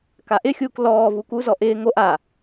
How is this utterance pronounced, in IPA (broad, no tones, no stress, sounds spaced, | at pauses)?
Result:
k a ʔ ɪ xʲ uː k l ɔː v u k u z ɔ ʔ ɪː ŋ o ʔ a